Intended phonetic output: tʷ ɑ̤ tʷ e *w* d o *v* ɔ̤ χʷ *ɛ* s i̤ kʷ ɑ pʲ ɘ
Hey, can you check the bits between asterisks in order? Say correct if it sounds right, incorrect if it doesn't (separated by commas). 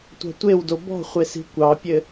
correct, incorrect, incorrect